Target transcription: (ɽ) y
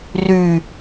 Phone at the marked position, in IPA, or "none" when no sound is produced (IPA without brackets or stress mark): r